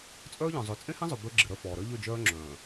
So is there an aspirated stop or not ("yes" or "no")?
no